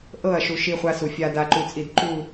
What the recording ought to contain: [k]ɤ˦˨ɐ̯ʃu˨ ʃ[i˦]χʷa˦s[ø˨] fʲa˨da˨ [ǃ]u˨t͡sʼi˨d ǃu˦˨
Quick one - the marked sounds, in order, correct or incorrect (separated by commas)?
incorrect, correct, incorrect, correct